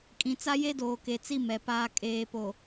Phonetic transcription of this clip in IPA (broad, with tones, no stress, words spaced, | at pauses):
kʼĩ˨t͡sa˦je˦doː˨ ke˨t͡si˦˨ mɛ˨paː˦ kʼeː˨po˨